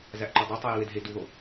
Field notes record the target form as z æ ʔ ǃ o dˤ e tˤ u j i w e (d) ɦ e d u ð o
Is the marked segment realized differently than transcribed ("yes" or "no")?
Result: no